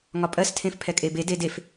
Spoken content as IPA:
ŋ ɒ pʼ ɜ s tʰ ẽ f pʰ ɛ kʼ e b e d e d e f

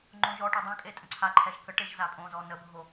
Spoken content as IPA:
ŋ͡ǃ õ ʒ ɔ ʈ o dˤ õ kʼ e tʼ ə̃ ǀʰ a ǃʰ ɛ ʒ k ə ʈ e ʒ z a pʼ õ z ɔ n ə bʱ o

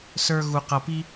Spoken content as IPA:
s ə˞˥ ɣ u˥ q ʌ˥ p i˥

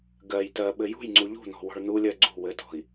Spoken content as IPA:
ɡ ɜ j t ɜ ɓ ɘ j ṳ j ŋ͡ǀ u ʎ ṳ n ɔ̤ w ɔ̤ ɭ n u lʲ ɜ ɡ͡ǀ ṳ w ɘ t ɔ̤ i̯

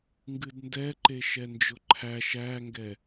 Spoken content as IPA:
ŋ ɡ ɨ d n d ɛ ǃ e ʃ ɛ n d͡ʒ ʊ ǃʰ æ ʃ æ ŋ ɡ ɛ

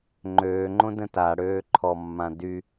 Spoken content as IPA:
ŋ͡ǃ øː ŋ͡ǃ õ d ə̃ t a ɽ øː ǃʰ ɔ mː ã d y

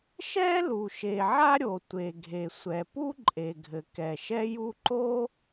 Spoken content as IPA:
ʃ ɛ˥ l u˩ ʃ e˩ ʕ a˥ ɾʲ o˩ tʷ e˩ ɡʱ e˩ sʷ ɛ˩ p u˥ ǃʼ e˩ ɡʱ ɘ˩ k ɛ˩ ʃ ɛ˥ j u˥ ǃ o˥

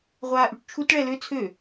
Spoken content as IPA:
ʁʷ aː ʔ y ʈ t͡ʃʰ u t ɭ ɛ l ø t͡sʰ ø

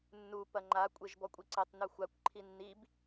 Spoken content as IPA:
nː u p ɐ ŋ͡ǃ a kʷʼ e ʒ b ɔ kʷʼ i ǀ ɐ tˤ n u xʷ a kʷ ǃʰ i nː i b

